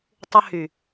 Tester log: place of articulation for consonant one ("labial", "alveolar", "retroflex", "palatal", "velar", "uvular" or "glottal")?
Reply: alveolar